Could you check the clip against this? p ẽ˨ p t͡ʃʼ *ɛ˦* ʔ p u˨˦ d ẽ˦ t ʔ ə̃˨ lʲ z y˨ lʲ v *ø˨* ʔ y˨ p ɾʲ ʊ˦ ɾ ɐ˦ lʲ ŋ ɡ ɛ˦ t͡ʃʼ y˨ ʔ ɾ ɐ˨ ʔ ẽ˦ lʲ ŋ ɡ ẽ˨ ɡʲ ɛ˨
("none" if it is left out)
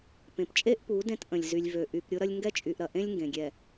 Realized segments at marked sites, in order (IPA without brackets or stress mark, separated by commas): e˦, ø˨